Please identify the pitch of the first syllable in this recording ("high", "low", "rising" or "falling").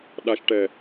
low